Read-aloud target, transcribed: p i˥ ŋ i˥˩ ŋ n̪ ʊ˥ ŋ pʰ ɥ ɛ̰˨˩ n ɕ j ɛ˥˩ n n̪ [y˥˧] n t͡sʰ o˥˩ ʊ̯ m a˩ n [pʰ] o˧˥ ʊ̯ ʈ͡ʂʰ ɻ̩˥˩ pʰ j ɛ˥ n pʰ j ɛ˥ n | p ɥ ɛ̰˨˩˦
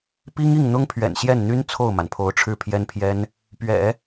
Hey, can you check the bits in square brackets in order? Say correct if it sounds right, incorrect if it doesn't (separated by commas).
incorrect, correct